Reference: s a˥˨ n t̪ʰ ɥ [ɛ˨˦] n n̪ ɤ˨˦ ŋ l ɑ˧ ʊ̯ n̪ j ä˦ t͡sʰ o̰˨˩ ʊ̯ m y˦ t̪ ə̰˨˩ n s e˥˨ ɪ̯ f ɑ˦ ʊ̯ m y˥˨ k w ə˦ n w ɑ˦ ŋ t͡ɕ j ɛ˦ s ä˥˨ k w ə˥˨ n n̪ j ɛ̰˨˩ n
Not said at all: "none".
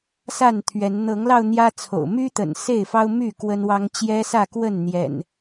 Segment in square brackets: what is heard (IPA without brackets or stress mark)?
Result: ɛ˨˦